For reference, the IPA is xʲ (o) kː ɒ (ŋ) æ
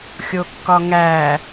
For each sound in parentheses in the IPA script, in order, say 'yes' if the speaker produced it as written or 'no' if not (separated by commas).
yes, yes